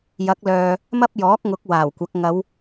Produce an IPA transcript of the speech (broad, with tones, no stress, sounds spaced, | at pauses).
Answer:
j ɐ˨˥ k̚ l œː˨ | m ɐ˥ p̚ j ɔː˨˥ k̚ ŋ ʊ˨˥ k̚ w aː˨˩ w kʷ ɐ˨˥ k̚ ŋ ɐ˨˧ w